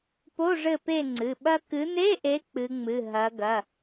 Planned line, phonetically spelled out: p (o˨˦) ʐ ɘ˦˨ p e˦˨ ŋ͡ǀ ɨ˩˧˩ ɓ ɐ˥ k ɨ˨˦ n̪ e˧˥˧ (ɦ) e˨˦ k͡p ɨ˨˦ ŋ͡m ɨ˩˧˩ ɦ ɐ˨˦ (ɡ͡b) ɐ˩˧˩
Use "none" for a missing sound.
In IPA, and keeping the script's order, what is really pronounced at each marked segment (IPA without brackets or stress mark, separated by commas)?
o˧˥˧, ʔ, ɡ